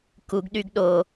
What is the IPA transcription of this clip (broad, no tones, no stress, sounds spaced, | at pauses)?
k u ɡ ɗ y ɡ ɗ o